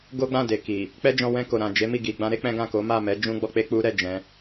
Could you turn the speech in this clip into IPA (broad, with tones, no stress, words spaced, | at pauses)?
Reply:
ɡo˦ɡ͡bã˦˨de˨ki˨ | k͡pɛ˦d͡ʒɔ̃˧wɛ̃˧ ko˨ ɾã˨d͡ʒe˨˦mi˦˨ ɡi˨ ɡ͡bã˧ɾe˦ k͡pɛ̃˦ɡã˦˨ ko˨˦ma˦˨ mɛ˨˦ d͡ʒũ˦ɡ͡bɔ˦k͡pe˦k͡pu˦ ɾɛ˦˨d͡ʒɛ̃˨˦